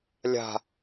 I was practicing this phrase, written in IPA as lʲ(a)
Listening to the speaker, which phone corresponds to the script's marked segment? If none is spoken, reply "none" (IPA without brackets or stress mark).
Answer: a̤